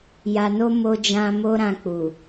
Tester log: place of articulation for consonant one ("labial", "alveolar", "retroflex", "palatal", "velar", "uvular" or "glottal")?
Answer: palatal